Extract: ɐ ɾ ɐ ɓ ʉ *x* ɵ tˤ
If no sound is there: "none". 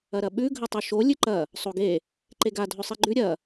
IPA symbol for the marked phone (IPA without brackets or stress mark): ɡʱ